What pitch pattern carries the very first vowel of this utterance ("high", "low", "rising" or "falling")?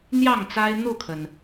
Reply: falling